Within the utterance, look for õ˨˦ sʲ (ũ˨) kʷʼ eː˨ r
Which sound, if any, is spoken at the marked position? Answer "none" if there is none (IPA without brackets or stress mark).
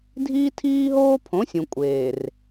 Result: ũ˨